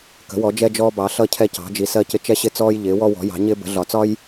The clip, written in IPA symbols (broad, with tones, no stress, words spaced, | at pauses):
kə̤˩˥ wɔ˩˥d͡ʒɛ˦ d͡ʒɔː˦bɑ˩˥ ɬʌ˦ cʰɛ˦cɑ̤˩˥d͡ʒi˩˥ sɜ˦cɪ˦ t͡ʃɛ˦ɕɪ˦t͡sɔː˦j ʎɪː˩˥wɔ˦wɔ̤˩˥ jɑ̤˩˥ ɲɪː˦bə̤˩˥ɮɒ˩˥ t͡sɒ˦j